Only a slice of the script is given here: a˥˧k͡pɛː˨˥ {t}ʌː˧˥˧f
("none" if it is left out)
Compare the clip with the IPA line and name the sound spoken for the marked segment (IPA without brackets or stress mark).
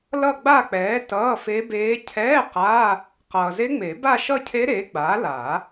t